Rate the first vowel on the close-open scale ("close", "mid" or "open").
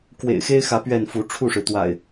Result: mid